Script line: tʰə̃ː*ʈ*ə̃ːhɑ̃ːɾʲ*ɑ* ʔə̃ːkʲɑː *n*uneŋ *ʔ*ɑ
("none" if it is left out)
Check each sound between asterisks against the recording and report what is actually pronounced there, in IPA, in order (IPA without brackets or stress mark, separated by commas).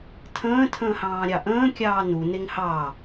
tʰ, ɑ, n, h